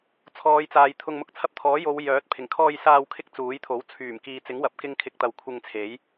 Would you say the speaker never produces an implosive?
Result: yes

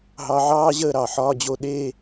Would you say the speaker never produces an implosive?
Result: no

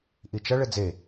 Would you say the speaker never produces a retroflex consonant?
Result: no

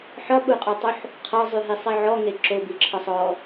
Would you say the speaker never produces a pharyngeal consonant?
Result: no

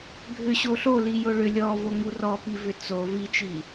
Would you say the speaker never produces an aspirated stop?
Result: yes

